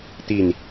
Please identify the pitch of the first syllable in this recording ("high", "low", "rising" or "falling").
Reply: falling